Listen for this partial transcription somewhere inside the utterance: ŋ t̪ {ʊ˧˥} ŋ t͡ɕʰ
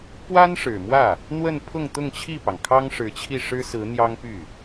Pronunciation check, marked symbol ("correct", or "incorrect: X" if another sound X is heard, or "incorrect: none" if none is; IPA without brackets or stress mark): incorrect: ʊ˥˧